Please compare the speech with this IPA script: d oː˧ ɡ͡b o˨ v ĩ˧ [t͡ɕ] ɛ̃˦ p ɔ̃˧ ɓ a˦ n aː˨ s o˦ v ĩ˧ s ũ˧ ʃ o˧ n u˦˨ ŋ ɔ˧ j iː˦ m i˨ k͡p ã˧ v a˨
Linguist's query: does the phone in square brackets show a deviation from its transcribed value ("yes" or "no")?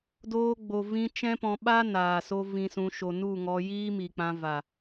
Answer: yes